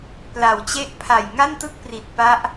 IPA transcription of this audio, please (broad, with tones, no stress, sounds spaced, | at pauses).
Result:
p l a˨˩ w t͡ɕ e˥˩ ʔ pʰ a˨˩ j ŋ a˥˩ n t ɯ˥˩ k̚ p r i˨˩ t̚ p a˦˥ ʔ